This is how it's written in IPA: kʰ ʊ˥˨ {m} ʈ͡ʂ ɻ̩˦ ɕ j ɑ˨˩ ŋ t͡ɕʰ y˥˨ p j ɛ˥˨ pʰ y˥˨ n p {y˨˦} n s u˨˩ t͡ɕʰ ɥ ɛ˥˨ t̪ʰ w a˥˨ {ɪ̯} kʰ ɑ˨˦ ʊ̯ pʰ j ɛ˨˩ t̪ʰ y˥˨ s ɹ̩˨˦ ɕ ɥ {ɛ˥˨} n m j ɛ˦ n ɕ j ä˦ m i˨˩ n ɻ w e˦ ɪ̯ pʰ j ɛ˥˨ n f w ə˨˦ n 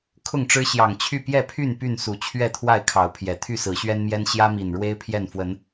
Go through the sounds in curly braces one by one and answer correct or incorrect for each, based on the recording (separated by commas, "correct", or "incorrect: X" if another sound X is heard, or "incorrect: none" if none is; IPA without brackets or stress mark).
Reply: incorrect: ŋ, incorrect: y˥˨, correct, incorrect: ɛ˦